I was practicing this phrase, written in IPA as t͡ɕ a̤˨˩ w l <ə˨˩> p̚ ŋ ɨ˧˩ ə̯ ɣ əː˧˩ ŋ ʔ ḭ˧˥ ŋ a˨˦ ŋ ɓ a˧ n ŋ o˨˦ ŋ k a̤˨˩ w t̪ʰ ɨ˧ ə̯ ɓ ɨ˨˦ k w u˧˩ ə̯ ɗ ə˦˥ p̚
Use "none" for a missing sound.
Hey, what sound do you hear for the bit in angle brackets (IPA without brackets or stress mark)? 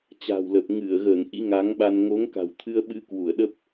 ə˨˩